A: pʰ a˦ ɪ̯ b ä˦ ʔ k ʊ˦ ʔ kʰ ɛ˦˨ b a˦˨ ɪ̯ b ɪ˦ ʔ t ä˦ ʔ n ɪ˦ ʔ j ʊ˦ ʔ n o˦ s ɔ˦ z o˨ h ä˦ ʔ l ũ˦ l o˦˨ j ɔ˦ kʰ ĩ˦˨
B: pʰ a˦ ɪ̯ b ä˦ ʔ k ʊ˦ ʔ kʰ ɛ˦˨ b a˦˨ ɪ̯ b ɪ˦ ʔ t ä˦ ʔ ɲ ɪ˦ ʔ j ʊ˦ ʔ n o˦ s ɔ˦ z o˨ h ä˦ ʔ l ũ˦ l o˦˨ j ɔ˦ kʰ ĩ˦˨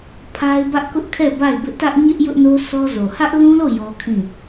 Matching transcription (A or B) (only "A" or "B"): B